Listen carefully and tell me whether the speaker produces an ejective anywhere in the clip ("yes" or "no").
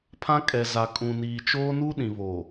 yes